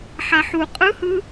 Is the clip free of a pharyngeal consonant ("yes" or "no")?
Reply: no